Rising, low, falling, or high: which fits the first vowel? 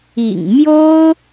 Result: low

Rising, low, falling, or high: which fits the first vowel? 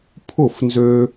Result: falling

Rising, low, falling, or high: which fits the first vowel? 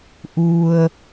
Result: low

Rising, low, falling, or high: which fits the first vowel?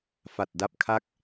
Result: low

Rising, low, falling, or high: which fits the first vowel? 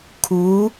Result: rising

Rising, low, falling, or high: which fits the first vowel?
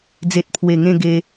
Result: low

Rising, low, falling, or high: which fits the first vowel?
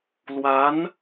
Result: rising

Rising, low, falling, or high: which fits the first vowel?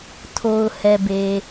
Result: low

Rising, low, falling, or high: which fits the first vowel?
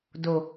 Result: low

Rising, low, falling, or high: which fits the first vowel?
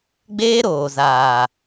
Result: high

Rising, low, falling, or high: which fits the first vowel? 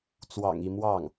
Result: low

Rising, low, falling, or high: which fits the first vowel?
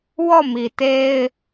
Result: falling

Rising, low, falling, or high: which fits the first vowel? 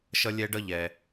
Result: high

